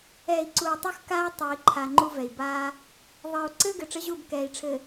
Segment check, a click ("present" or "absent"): present